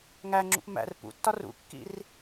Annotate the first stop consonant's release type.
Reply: click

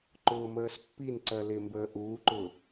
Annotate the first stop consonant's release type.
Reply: click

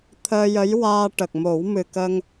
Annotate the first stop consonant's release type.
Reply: aspirated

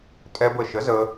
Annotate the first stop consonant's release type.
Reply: ejective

